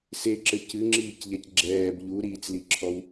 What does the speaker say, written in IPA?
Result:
s e ǁ ɘ c ɨ ŋ͡ǁ iː c ʎ ɛ c ɡ͡ǁ ɛː b ʎ u ɾ iː t͡s l i ǁʰ ɔ w

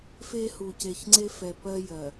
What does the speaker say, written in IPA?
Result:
f e˦ h u˨ c e˨ ç ŋ͡ǀ e˦ f ɛ˨ p ɜ˦ j ɜ˨

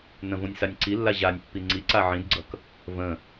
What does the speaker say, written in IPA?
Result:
n ə̃ v õ nʲ s a nʲ ǀ i lː a ʑ a nʲ pː i ŋ͡ǀ i ǀ a ʕ ĩ d ɡ͡ǀ ʌ k | v ə̃

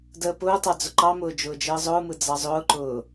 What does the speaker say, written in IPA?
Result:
d əː p ʊː tˤ ɑ d͡z ʊ ǃ ɑ m ʊː d͡ʒ ʊː d͡ʒ əː zˤ ʊː m ɯ d͡z ɑ zˤ ʊː ǃ ʊː

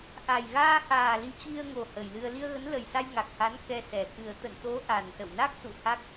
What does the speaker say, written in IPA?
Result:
ʔ a˨˩ j ɣ aː˧ h aː˨˩ l i˧ t͡ɕ i˧ ə̯ ŋ o˨˩ h ə˨˩ j l ɨ˧ ə̯ l i˧ ə̯ ɣ ə˨˦ n l ə˨˩ j s a˧ j ŋ a˨˩ k̚ h a˨˦ n k ɛ˧ s ɛ˨˩ x ɨ˨˩ ə̯ t̪ ə̰˧˨ n t̪ o˨˦ ʔ a˨˩ n s ə̰˧˨ w n a˦˥ k̚ s ṵ˧˨ h a˦˥ k̚

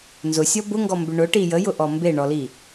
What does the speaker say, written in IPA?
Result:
n z ʊ sʲ ɔ b ʊ ŋ ɡ ɔ m b ʏ ɳ ʊ ʈ i j ə j ʊ ʔ ɔ m b e ɳ ɔ l i

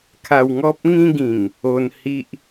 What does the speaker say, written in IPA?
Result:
kʰ a˧ w ŋ ɔ˦ p̚ ŋ ĩ˦ ɡ ĩ˨˩ ŋ | o˧ n h i˦ ʔ

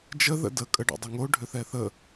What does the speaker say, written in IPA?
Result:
d͡ʒ ə ð ə̰ d ə kʼ ə ɖ o̰ dˤ ʏ ŋ o ɖʱ ʏ θ ɛ θ ə

